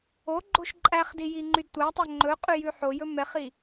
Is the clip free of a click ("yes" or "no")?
no